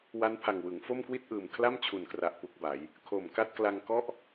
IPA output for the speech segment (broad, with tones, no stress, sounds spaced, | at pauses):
w a˦˥ n pʰ a˨˩ ŋ w ɯ˩˦ ŋ f o˥˩ m k w i˥˩ t̚ ʔ ɯː˨˩ m kʰ l a˥˩ m t͡ɕʰ u˨˩ n k r a˨˩ ʔ p u˦˥ k̚ b a˩˦ j | kʰ o˨˩ m k a˥˩ t̚ k l a˧ ŋ k ɔ˥˩ ʔ